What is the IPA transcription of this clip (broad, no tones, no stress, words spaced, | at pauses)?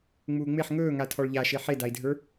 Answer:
ŋ͡muːŋ͡meħ ŋɵːŋa tʰɔɭʎaʃe ħedai̯dʱə˞